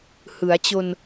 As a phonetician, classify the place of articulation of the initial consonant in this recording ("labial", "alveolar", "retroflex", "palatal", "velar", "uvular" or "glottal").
glottal